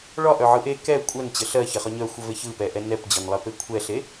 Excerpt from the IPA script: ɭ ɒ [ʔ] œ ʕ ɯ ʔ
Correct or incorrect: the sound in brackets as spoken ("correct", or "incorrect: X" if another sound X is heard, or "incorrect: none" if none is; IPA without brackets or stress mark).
correct